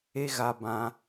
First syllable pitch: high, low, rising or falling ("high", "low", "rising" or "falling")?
high